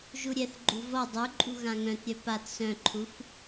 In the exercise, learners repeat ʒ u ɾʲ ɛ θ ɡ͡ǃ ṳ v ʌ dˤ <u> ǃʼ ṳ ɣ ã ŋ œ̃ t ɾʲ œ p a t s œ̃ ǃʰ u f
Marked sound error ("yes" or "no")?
no